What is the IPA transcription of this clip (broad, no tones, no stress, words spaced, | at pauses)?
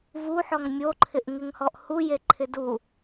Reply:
vuħɔŋ mʲoǃʰɪʔŋɪŋhɔʔ hujeǃʰɪ du